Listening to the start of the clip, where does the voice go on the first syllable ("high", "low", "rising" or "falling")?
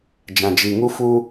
low